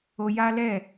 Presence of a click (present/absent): absent